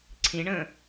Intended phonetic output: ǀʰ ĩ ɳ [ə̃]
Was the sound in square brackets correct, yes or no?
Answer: yes